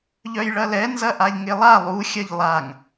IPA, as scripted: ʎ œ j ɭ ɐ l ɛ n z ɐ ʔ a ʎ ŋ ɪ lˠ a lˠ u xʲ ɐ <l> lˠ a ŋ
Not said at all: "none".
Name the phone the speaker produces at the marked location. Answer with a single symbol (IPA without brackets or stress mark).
ʎ